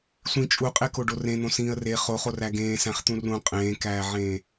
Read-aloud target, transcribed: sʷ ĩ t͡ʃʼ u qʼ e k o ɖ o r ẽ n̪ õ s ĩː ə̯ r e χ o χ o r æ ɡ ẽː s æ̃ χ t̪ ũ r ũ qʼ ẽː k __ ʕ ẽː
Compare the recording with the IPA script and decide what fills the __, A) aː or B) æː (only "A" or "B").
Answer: B